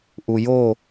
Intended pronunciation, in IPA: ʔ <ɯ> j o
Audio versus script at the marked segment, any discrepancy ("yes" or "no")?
yes